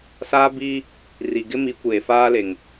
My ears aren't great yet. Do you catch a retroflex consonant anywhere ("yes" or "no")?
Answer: no